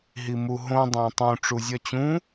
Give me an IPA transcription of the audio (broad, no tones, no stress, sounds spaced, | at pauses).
ɦ i m u ɦ õ dˤ æ̃ tˤ ũ ʈ͡ʂ u zʲ ɒ t͡ɕ ũ